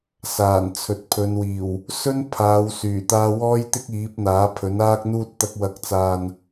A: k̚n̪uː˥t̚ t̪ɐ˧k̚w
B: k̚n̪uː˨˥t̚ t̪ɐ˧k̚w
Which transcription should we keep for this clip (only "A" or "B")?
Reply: A